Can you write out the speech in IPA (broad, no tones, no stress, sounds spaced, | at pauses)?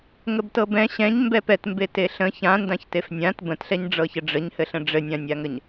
ŋ ə b t ɤ b ɛ̃ ɕ ɛ̃ ɲ m b ɛ p ɛ t m b e t e ɬ ə̃ ç ã n d ã ç t e f nʲ ã t b ə̃ t ɬ ɛ ɲ ɖ͡ʐ ɤ ç ə ɖ͡ʐ ə ɲ h ɘ ɬ ə̃ ɖ͡ʐ ɘ nʲ ã nʲ a ŋ ə ɲ